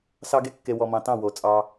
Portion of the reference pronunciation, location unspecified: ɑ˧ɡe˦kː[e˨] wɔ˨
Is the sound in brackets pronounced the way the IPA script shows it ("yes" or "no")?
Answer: yes